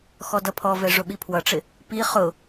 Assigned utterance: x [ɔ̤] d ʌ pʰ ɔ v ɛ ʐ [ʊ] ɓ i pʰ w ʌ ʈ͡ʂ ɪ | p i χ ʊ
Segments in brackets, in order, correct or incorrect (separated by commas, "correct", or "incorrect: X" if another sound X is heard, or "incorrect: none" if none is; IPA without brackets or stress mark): incorrect: ɔ, correct